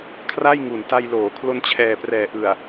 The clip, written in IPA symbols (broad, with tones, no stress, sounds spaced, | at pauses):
kʰ r a˥˩ j ŋ u˨˩ n t a˧ j l oː˩˦ kʰ l o˧ n t͡ɕʰ ɛː˨˩ p r ɛː˨˩ ʔ ɯ˨˩ a̯